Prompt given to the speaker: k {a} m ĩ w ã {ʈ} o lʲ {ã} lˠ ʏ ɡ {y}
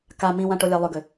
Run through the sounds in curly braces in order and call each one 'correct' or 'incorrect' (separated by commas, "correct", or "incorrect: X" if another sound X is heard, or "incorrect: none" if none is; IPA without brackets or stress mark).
correct, correct, incorrect: a, incorrect: ʏ